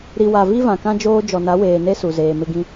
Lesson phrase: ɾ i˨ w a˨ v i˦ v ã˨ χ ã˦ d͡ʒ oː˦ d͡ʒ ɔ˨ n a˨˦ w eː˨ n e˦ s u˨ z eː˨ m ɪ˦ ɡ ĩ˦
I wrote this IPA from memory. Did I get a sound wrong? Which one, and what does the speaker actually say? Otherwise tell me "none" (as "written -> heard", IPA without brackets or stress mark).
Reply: χ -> k